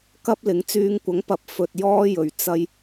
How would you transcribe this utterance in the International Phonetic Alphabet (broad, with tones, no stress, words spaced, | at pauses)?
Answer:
kɐ˥p̚lɪ˨˥ŋ t͡syː˨˧ŋkʷɐ˨˥ŋpɐ˨˥p̚ fɵ˧t̚ jɔː˥jɵ˨ɥ t͡sɐ˧j